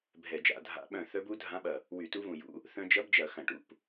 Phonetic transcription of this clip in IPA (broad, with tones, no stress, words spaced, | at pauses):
bʱɛ˧˩˧d͡ʒa̰˧˩˧dʱa̰˧˥ ɓœ̃˧˩ θœ˧˥bu˧˥dʱã˧˥ɓɐ˧˩ | wy˧˩˧tu˧˥vũ˧˩jṵ˧˥ | θœ̃˧d͡ʒɐ˧˥bd͡ʒɐ˧˩˧ xɐ̃˧˩˧ʈṵ˥˧p